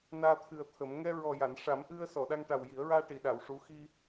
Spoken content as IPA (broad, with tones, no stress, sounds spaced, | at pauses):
n aː˧ t̪ʰ ɨ˨˩ ə̯ t̪ʰ ə˨˩˦ m ŋ ɛ˧ ɹ ɔ˨˩ j a˨˩˨ n ʂ a˨˩˦ m ʔ ɨ˧ ə̯ s ɔ˨˩˨ ɗ a˧ ŋ ʈ a˨˩ w j i˨˩˦ ə̯ ɹ aː˧ ʈ i˨˩˨ ɗ a˨˩˨ w ʂ u˧˥ x i˧